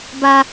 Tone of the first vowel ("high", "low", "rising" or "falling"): high